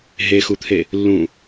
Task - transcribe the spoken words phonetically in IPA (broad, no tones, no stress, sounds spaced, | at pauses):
ɦ e x u t̪ʰ e | lː ũ